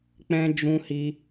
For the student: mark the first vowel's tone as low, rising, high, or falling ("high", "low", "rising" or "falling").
high